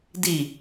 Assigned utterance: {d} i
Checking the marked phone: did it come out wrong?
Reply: no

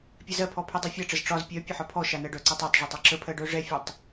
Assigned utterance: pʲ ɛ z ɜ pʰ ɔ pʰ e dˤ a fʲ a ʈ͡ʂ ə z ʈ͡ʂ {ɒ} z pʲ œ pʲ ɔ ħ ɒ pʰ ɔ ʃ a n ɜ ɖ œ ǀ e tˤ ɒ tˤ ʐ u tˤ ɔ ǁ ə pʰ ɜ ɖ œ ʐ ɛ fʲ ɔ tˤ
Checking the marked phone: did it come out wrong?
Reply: no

